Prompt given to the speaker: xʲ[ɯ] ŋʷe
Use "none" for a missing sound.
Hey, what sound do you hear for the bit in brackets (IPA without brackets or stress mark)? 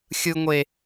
ɯ